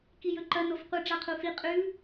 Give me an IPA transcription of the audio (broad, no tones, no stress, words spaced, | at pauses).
kijɵǃɐ nofqʷɨ ɖ͡ʐaqʰufi qʼʉ